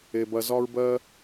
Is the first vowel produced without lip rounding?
yes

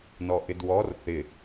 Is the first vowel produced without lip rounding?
no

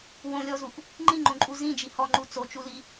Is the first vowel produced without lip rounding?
no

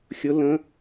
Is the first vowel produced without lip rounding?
no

